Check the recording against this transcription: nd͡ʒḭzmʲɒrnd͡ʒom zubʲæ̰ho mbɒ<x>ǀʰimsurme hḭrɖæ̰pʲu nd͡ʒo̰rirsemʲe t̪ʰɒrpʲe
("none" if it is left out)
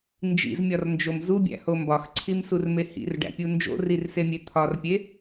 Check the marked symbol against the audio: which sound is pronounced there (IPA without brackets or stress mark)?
x